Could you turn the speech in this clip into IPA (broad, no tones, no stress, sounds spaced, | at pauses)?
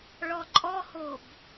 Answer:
ɭ ɔ ǃʼ ɔ h o b